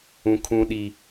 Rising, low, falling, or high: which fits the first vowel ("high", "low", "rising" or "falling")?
high